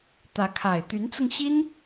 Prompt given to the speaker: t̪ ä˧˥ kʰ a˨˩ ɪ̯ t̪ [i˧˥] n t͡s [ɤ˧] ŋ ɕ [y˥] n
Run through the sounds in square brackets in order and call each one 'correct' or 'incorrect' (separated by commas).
incorrect, correct, incorrect